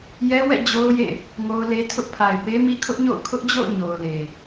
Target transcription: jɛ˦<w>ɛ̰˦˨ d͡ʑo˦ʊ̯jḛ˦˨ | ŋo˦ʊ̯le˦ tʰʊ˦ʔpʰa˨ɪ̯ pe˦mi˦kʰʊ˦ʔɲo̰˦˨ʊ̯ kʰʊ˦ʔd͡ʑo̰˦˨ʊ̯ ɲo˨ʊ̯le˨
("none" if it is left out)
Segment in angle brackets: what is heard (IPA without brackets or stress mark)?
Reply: w